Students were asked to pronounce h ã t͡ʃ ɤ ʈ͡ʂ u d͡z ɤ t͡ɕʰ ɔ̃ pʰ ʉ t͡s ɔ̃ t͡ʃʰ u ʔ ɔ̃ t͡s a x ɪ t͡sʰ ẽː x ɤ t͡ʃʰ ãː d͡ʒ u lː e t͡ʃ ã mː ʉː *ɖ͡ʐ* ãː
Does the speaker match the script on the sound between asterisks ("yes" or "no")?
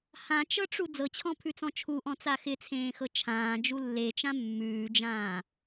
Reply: no